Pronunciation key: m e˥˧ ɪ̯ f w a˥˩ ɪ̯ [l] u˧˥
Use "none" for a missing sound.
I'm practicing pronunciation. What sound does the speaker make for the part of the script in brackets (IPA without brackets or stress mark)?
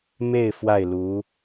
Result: l